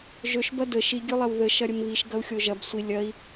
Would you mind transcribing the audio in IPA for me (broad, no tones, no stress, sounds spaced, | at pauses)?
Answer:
ʒ ɵ ʃ b ɐ d ə ʃ i ɡʲ ɵ lˠ ɐ w ð ə ʃ ɐ ɾʲ ə m β i ʃ ɡ ɐ u̯ xʲ o ʒ ɐ b sʷ i lʲ ɐ i̯